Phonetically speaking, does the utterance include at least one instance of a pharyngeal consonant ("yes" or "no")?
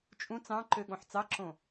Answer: yes